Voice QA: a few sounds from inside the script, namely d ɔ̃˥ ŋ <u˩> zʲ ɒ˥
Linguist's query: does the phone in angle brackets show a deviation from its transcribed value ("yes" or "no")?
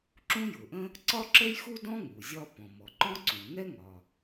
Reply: no